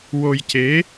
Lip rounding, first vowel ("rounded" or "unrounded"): rounded